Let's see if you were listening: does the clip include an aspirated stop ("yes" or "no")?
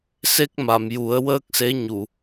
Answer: no